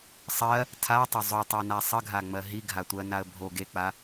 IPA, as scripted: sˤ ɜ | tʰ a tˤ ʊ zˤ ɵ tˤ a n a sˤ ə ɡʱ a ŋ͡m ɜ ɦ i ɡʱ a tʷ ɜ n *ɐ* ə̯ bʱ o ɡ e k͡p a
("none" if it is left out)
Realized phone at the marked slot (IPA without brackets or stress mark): a